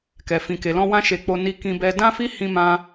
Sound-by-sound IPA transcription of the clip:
k ɛ˨ f ĩ˨ k e˨ l ɔ̃˧ w ã˦ ʃ e˧ k͡p o˧ n i˧ k ĩ˧ b ɛ˧ d ã˦ f i˦ h ĩ˦ m ã˦

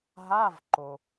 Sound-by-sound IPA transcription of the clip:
ɦ a˧˥˧ v ǃ o˩

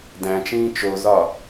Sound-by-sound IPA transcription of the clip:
d æ̃ t͡ʃ ĩː t͡ʃ o z ɒ

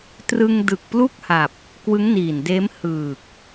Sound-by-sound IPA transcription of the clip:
t r ɯ˧ ŋ d ɯ˨˩ k̚ p l u˥˩ k̚ h a˨˩ p̚ | k w ɯ˦˥ ŋ n iː˨˩ n d eː˦˥ m h ɯː˨˩ k̚

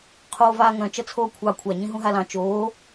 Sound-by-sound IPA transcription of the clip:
qʰ oː v aː ŋ œ̃ t͡ʃ ʌ t͡sʰ oː kʷʰ ɑ kʷʰ a ɲ ĩ ɦ ũ ɦ a l ɑ̃ t͡ʃ oː

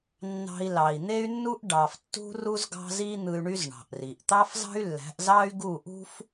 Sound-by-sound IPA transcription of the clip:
nː ɑ̤˧ i̯ l ɑ˨ i̯ n̪ e˦ y̯ nː u˦ ʔ ɖ ɑ˨ f tː ṳ˦ r u˦ z ɡ ɑ̤˦ z i˦ n̪ ɯ˧ y̯ ɳ y˦ z ɳ ɑ̤˨ ʔ r i˨ ʔ t̪ ɑ˦ f z ɑ̤˦ y̯ lː æ̤˨˦ ʔ z ɑ˦ y̯ ɡ u˦˨ ʔ ṳ˦ f

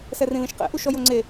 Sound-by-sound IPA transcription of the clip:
s ɛ r ĩ l ĩ ʃ q ɛ̰ ʔ u ʃ ɔ j o ŋ͡ǀ e

